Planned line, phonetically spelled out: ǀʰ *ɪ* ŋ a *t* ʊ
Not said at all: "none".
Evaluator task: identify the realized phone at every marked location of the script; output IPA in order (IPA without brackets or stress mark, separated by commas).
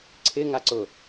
ɪ, ǀ